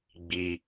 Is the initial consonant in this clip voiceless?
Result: no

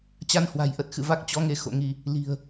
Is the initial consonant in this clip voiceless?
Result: yes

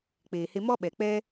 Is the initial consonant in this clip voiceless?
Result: yes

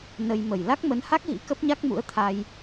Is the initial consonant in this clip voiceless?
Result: no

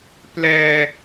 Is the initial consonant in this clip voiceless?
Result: yes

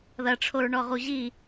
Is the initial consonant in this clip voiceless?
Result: no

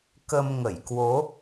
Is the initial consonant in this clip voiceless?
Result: yes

